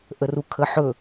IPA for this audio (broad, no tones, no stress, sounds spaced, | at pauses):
ʔ ə r u kʰ ə ħ ɵ